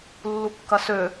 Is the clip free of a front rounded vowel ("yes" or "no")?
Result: no